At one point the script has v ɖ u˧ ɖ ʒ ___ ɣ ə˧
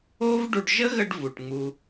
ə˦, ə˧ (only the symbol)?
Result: ə˦